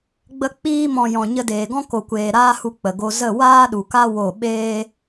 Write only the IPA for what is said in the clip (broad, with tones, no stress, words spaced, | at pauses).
ɡ͡bə˧ k͡piː˧mɔ̃˨ jɔ̃˨ɲə˧deː˨ɡɔ̃˦ ko˨kʷeː˨ɾaː˦hu˧ k͡pə˨ɡo˧ zə˦˨ waː˦ɗu˨ka˦ wo˦˨ ɓeː˦